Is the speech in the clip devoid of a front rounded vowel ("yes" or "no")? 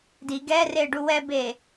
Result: yes